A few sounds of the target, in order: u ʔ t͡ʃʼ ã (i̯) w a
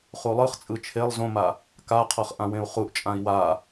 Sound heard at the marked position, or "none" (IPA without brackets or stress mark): i̯